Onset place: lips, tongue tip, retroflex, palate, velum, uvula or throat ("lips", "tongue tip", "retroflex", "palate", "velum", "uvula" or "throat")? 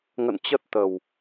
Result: velum